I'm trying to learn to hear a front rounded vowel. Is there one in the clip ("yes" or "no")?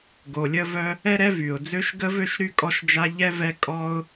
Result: yes